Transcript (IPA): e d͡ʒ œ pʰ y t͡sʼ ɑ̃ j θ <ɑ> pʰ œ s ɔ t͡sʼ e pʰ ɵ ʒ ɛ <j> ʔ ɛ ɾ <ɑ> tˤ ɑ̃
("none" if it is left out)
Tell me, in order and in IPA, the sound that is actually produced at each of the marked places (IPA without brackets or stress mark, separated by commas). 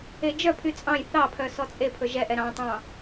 ɑ, none, ɑ̃